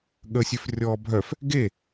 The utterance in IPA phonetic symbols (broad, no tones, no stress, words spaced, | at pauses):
ɠəsʲøf rʲɔːbʱœf | ɡe